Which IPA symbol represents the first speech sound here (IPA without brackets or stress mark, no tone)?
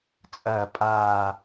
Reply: t͡sʼ